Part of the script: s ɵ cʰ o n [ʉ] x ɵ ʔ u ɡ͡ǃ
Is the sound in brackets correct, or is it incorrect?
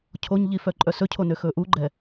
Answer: incorrect